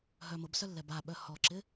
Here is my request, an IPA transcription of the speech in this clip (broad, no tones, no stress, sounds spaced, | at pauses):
ɦ œ m ʊ b s œ lː ɛ b a ɓ œ h ɔ ǁ ɪ